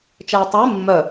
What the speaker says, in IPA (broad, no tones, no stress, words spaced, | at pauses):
t͡ʃɛɪ̯tˤøɪ̯ mːœ